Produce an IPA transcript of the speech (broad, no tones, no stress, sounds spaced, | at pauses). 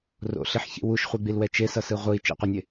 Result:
r o̰ ɬ i ħ ç ḭ w u ʃ χʷ i ɡ͡b i l w ɛ t͡ʃ e s ʌ s ɯ ʁʷ ɯ i̯ t͡ʃ ḭ qʷ a nʲ e